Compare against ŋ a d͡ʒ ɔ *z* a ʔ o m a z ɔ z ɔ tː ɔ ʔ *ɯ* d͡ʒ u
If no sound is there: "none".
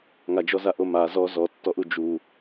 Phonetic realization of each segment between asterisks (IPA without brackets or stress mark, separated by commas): z, u